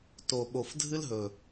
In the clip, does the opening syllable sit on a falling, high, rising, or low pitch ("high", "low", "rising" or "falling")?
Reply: low